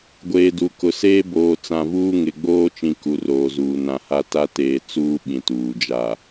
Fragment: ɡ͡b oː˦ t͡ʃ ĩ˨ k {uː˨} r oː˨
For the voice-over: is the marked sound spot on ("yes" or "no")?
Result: no